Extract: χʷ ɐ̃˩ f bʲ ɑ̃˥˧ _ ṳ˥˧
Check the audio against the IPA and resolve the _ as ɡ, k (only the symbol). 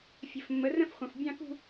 k